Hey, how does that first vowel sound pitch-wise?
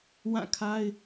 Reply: falling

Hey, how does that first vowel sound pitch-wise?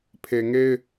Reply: low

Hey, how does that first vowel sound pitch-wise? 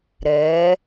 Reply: rising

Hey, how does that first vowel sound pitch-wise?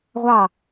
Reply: falling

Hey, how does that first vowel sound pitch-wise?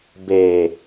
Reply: low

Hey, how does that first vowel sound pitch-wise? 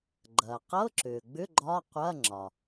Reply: low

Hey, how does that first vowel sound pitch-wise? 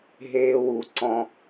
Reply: high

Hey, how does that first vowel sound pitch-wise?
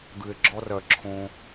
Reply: low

